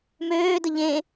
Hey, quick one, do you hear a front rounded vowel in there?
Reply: yes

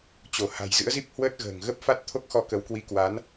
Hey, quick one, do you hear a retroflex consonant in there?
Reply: no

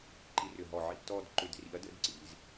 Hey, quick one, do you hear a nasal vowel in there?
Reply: no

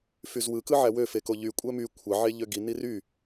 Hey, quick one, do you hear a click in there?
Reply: no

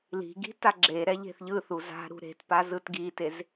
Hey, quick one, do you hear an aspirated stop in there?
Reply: no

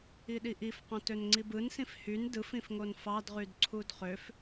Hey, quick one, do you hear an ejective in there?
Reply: no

